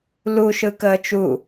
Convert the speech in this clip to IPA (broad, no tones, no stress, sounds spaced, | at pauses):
l u ʃ ɯ k əː t͡ʃ u